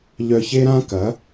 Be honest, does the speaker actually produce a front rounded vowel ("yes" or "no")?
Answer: yes